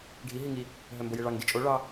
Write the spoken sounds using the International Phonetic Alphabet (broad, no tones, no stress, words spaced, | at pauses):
ɖʱi ɦiŋi | ɦœmbojeɭɑŋ dit͡ʃʼo ɭɑ